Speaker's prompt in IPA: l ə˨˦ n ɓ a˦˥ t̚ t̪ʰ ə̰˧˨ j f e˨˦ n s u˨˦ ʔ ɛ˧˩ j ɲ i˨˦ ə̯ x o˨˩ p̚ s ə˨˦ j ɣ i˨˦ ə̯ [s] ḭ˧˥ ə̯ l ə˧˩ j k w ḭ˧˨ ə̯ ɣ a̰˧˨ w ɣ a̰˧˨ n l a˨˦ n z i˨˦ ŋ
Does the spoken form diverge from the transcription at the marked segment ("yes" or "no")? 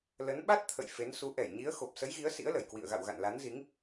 no